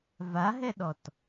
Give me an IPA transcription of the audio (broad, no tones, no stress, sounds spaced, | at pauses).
v a ɦ ɛ ɗ ɔ t